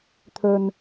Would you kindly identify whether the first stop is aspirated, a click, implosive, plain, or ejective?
aspirated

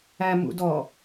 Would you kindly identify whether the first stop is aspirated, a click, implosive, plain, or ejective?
plain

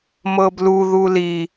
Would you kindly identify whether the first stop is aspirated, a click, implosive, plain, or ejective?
plain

